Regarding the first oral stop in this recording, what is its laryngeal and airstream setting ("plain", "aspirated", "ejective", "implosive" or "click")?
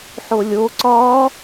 click